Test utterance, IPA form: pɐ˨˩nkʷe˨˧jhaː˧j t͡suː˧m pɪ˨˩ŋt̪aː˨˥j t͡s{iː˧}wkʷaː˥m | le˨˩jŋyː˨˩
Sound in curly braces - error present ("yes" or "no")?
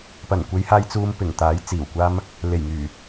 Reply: yes